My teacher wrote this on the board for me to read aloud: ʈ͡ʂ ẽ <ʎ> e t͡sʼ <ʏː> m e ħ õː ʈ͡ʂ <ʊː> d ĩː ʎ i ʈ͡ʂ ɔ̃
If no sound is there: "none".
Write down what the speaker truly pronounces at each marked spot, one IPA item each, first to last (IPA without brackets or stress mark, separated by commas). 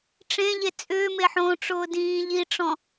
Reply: ʎ, ʏː, ʊː